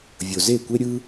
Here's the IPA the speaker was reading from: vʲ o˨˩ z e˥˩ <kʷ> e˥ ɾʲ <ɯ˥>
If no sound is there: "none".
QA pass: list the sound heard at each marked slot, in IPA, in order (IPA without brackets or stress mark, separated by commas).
kʷ, ɯ˥